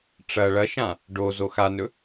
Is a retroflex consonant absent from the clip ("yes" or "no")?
no